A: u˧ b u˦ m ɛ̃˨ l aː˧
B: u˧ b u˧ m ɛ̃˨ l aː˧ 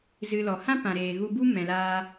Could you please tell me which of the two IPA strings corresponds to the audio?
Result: A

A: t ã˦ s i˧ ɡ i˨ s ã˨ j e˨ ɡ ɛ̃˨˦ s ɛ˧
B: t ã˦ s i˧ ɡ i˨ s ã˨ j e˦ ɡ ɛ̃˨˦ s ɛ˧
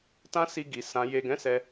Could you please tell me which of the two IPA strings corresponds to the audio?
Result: A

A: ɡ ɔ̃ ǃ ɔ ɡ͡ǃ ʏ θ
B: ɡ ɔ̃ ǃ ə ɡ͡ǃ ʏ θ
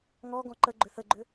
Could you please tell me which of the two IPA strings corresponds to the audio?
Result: B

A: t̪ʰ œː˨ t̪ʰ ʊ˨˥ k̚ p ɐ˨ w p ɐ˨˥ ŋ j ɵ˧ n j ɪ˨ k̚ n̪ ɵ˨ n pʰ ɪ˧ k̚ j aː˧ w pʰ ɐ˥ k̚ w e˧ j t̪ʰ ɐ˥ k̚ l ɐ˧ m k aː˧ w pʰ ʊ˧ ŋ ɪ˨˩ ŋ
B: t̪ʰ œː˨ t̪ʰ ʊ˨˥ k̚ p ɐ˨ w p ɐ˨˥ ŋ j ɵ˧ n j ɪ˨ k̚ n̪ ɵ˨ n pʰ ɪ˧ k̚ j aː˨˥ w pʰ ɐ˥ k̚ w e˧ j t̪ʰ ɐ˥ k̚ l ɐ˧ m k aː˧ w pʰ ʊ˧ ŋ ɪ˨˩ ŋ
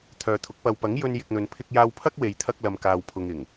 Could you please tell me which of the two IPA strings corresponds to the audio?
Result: A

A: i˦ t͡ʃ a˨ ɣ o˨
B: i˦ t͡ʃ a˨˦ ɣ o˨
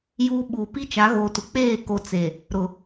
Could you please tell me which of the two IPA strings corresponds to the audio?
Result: B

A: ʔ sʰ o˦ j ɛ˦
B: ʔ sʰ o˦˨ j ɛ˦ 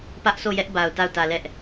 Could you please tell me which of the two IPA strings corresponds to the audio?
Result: B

